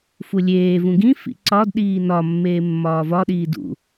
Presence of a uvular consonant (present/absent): absent